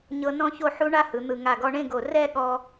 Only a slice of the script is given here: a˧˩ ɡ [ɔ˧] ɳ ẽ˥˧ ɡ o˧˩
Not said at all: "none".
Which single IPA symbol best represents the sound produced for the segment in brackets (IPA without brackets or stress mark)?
ɔ˧